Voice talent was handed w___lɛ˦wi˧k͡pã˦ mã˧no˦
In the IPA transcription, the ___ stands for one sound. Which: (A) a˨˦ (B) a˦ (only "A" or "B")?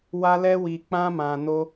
B